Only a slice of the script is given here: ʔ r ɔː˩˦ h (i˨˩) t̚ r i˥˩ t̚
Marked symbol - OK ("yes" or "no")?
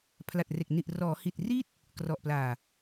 yes